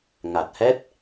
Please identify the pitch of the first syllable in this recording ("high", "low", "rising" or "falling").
low